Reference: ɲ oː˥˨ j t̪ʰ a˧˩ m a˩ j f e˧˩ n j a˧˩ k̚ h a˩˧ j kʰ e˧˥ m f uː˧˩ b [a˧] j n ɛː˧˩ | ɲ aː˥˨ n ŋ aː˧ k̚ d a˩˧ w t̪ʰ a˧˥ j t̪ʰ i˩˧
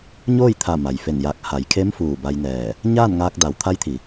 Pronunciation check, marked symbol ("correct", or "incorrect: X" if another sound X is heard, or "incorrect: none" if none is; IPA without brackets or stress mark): correct